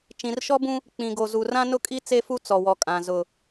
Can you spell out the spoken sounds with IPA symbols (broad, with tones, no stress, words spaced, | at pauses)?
t͡ʃĩ˨rʃɔ˦bũ˦ | k͡pĩ˨ɡo˨ zu˨rã˦nʊ˦kʼi˦ t͡se˦fu˦ t͡sɔ˨wɔ˨kʼã˨ zʊ˨